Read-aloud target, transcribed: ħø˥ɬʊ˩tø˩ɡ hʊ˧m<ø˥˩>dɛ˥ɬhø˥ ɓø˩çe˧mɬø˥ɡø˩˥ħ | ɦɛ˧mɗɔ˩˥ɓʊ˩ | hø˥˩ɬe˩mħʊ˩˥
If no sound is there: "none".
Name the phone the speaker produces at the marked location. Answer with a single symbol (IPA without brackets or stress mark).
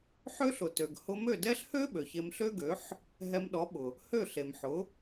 ø˥˩